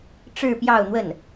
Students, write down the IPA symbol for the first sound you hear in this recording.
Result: ʈ͡ʂ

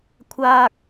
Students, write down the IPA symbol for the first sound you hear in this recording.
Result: kʷʰ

